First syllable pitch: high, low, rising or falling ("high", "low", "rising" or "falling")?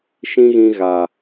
high